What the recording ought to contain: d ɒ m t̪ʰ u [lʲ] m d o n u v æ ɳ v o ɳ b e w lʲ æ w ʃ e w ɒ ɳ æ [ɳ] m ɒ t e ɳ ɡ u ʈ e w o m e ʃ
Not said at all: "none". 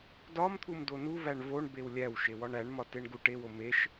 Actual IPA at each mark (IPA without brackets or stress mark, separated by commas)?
none, ɳ